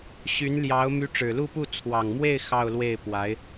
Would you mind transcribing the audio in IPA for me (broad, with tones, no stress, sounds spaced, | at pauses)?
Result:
ɕ y˧˥ n l j ɑ˧˥ ʊ̯ m y˧˥ ʈ͡ʂ ɻ̩˨˩ l u˥˧ p u˥˩ t͡sʰ w ɑ˨˩ ŋ m w e˥˧ ɪ̯ x ɑ˥˧ ʊ̯ l w e˥˩ ɪ̯ p w a˧˥ ɪ̯